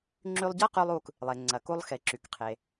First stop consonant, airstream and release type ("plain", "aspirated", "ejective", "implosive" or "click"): click